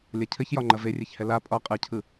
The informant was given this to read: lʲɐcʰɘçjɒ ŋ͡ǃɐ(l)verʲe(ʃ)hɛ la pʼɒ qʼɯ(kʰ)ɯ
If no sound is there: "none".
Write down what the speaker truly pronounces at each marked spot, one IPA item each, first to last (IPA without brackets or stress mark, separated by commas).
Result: none, ç, cʰ